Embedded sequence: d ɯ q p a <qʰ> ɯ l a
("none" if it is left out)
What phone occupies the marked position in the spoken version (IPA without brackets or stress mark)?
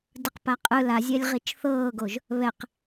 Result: qʼ